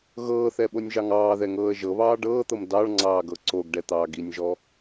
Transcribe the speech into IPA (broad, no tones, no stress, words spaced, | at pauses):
ɣɤːθɛɓonʲʒɑŋ ɑːðɛŋɤːə̯ ʒɤβɑː ɖɤːt̪ɤm dɑɭŋ͡ǀɑːɡɤ ǀoɡɖɛt̪ɑːɡ inʲʒɔ